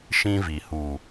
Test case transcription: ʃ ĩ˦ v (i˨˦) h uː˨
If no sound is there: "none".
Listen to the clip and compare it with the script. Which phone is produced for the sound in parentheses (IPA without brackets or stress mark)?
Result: i˨